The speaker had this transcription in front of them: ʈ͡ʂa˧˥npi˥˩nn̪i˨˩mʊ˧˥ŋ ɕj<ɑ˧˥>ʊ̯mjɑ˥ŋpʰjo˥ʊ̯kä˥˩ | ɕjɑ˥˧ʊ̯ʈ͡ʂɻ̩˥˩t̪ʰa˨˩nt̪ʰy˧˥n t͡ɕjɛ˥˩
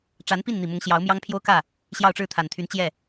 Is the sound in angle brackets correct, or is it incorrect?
correct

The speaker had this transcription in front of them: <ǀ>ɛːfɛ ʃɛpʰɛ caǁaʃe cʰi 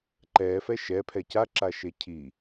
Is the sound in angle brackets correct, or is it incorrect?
incorrect: ǃ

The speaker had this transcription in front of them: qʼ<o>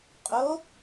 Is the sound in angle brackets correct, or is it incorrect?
correct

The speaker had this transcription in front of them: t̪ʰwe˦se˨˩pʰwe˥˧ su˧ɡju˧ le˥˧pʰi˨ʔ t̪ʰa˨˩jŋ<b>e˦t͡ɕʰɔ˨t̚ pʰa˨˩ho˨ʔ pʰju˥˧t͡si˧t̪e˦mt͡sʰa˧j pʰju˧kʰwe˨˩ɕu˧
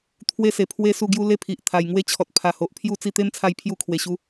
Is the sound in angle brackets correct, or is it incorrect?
incorrect: w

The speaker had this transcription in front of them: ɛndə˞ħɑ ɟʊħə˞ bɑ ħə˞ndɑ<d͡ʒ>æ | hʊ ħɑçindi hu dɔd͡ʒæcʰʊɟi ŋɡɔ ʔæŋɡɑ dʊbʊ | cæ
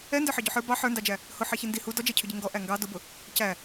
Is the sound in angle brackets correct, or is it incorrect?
correct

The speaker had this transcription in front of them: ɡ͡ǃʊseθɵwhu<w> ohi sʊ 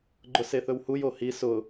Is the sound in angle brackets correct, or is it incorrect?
incorrect: j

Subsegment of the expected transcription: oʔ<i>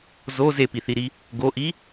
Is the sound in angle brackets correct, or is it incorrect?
correct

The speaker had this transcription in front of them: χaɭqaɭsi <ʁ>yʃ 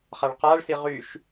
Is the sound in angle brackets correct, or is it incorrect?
correct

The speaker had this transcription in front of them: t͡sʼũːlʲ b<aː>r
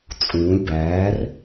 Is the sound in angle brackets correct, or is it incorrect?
incorrect: æː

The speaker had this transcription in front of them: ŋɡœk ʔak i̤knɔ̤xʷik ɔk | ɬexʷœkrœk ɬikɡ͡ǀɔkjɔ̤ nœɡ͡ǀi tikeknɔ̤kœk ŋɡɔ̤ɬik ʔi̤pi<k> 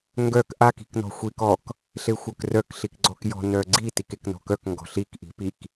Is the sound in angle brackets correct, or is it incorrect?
correct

